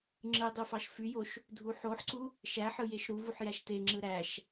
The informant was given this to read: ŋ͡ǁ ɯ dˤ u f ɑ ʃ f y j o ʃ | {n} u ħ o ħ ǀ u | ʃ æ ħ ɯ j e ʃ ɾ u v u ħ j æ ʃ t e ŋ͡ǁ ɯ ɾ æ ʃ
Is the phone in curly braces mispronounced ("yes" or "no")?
yes